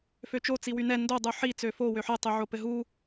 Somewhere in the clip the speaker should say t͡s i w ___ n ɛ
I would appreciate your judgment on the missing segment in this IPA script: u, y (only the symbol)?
y